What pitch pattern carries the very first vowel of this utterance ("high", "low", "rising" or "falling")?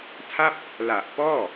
falling